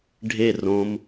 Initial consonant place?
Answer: retroflex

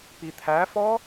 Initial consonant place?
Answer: labial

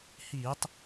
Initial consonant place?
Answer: glottal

